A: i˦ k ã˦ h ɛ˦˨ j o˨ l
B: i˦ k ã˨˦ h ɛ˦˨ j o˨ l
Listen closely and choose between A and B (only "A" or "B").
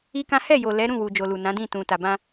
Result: A